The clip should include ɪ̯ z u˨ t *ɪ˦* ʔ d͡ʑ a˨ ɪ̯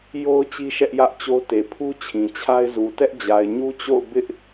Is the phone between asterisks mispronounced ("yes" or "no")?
yes